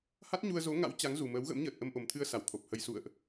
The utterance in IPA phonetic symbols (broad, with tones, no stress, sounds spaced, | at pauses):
h a˦˥ t̚ ɲ u˧ ə̯ z o˨˦ ŋ a̰˧˥ w t͡ɕ a˨˦ ŋ z u˨˩ m əː˨˦ w ɣ ə̰˧˥ m ɲ əː˨˩ t̚ ʔ ə˧ m ʔ o˨˩ m t̪ʰ ɨ˧ ə̯ s a˧˩ w t̪ʰ o˨˩ p̚ h ə˧ j s ṵ˧˨ ə̯ ʔ